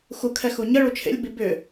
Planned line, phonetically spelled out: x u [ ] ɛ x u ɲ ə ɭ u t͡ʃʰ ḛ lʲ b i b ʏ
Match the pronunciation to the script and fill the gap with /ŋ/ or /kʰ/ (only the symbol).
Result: kʰ